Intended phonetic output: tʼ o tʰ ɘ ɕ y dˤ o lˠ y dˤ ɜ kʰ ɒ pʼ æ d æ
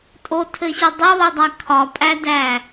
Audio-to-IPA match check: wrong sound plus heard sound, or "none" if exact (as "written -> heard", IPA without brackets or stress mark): ɜ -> æ